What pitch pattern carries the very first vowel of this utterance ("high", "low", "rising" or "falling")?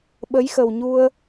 rising